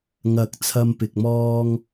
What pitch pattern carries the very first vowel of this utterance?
low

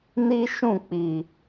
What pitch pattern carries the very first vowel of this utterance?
high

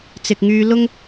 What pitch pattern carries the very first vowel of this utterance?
low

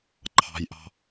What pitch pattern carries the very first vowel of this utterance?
high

